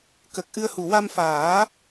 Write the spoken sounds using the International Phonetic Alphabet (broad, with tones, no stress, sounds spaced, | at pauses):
k ə˨˩ k̚ ʔ ɨ˧ ə̯ h u˨˩ w a˧ m f aː˨˩˦